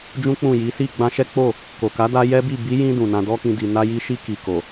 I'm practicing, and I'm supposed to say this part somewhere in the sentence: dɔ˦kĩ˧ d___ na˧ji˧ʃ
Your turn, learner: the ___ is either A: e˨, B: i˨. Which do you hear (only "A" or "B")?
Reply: B